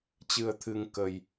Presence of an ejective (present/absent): absent